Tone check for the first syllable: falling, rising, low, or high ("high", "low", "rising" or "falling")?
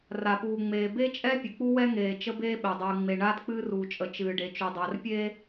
low